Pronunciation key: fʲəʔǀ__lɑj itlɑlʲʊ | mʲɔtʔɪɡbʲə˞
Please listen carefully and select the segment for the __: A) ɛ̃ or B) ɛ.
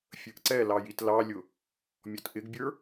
B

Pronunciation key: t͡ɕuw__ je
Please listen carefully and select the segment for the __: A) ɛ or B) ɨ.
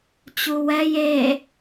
A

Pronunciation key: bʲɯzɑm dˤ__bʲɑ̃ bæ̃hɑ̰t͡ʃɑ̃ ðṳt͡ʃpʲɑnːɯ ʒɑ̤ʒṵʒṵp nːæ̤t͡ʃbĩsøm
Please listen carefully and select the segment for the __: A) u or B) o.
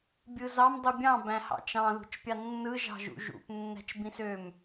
A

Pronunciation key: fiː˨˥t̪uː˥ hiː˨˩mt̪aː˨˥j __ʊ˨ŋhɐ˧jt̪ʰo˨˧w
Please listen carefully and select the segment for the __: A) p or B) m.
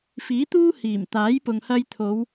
A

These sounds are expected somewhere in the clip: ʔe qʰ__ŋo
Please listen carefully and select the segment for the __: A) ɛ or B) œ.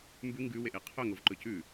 B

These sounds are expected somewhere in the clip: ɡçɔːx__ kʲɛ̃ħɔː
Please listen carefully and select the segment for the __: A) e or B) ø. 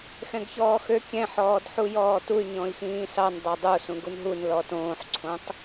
B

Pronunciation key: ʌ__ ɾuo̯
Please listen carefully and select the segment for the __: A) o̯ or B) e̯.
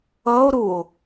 A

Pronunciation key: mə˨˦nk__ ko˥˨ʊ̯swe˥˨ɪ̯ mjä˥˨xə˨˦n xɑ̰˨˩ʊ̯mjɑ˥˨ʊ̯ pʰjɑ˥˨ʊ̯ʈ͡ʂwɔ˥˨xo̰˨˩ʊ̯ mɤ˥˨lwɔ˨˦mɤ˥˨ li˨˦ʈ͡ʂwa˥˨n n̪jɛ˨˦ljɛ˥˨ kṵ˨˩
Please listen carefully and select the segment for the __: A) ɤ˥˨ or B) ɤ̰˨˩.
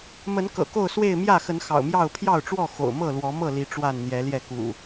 B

